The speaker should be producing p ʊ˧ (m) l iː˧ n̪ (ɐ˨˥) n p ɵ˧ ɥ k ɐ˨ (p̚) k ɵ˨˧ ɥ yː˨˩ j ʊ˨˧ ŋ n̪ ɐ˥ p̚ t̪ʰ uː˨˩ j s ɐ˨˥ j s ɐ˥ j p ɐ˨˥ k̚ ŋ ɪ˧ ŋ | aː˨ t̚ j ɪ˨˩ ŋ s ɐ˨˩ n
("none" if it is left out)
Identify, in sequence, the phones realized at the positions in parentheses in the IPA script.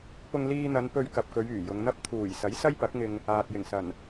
ŋ, ɐ˨˧, p̚

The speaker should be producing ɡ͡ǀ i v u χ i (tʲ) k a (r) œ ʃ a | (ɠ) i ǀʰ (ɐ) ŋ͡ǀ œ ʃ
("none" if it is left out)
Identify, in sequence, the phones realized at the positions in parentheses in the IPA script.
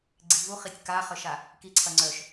tʲ, χ, k, ɐ

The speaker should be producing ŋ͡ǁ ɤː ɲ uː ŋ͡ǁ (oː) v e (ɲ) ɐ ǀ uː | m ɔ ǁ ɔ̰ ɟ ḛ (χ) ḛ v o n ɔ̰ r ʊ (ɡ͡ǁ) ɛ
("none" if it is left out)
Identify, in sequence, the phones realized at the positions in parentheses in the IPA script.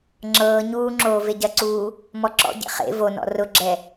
oː, ɟ, χ, ɡ͡ǁ

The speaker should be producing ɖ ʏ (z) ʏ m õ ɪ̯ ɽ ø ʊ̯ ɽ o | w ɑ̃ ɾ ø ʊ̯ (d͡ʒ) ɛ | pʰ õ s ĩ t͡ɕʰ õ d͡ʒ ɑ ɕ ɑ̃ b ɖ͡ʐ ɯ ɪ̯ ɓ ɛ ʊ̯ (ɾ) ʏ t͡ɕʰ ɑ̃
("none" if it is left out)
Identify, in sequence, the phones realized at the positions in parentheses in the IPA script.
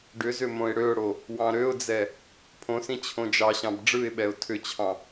z, d͡z, tʰ

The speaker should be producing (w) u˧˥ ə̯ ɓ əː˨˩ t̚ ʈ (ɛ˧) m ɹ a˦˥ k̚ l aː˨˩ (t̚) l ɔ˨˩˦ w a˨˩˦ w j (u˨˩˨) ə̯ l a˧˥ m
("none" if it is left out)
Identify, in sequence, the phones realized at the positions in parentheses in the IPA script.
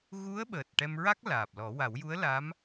ɣ, ɛ˧, p̚, u˧˥

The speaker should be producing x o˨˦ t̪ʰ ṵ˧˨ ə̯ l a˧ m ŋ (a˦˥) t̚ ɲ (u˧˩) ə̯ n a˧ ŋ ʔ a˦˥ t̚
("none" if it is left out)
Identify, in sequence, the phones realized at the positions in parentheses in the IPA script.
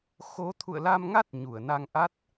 a˦˥, u˧˩

